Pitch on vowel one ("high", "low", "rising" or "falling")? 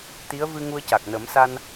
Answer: rising